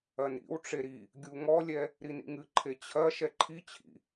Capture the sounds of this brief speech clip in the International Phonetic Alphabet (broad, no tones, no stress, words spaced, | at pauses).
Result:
ɐnɾḭwʈ͡ʂe ɾi | ɡʲuŋɔlʲɛ | ɾinḭŋɨǃʰe t͡ɕʰɐ ʃɛǃʰit͡ɕʰḭ